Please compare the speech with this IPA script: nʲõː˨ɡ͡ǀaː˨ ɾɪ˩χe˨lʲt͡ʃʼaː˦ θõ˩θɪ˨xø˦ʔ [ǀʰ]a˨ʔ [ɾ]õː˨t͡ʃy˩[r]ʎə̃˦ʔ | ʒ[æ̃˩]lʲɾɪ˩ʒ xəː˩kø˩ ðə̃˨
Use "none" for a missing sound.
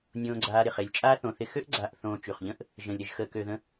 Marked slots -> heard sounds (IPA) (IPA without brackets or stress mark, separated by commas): ɡ͡ǀ, θ, χ, ə̃˩